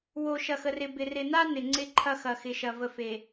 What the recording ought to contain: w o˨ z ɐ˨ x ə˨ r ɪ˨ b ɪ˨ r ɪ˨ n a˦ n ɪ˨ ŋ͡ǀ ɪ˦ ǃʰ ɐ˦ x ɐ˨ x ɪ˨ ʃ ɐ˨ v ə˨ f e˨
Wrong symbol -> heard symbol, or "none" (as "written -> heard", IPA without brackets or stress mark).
z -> ʃ